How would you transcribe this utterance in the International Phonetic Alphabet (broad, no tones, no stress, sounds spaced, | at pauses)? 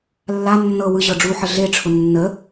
lː a nː ɤ w ɯ ʑ ɤ ɖ͡ʐ u ħ ə ɮ e ʈ͡ʂʰ ʊ nː ə